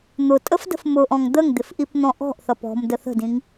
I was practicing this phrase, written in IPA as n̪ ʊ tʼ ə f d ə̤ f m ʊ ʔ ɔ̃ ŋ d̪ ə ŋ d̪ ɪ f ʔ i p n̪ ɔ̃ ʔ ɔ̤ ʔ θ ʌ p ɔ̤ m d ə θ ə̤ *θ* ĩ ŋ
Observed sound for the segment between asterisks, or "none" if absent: d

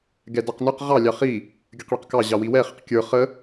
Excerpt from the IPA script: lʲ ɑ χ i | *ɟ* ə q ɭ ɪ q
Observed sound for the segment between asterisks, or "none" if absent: ɡʲ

